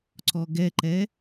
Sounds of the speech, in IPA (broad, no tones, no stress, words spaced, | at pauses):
ǀɔɡɛǃɛ